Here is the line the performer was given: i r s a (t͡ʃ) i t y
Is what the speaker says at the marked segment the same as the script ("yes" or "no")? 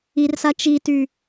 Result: yes